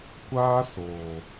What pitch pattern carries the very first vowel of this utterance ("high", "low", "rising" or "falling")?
high